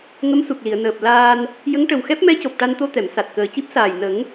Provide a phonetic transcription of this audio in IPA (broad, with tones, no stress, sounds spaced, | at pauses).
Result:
ŋ ə˧˥ m s u˨˩ k̚ l i˨˩˨ ə̯ n əː˨˩ p̚ l aː˧ n | j ə˧˥ ŋ ʈ ə˨˩ w x ɛ˦˥ p̚ m ɛ˧˥ c o˨˩ p̚ ʈ a˧ n t̪ o˧ t̪ ɛ˨˩˨ m s a˨˩ t̚ k əː˨˩ c i˦˥ p̚ s aː˨˩ j n ə˨˩˦ ŋ